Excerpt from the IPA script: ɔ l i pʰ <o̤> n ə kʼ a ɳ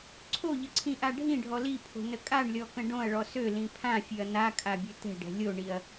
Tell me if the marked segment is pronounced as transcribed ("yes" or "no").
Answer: yes